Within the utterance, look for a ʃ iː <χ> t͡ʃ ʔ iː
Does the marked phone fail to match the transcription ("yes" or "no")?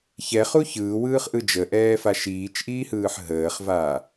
yes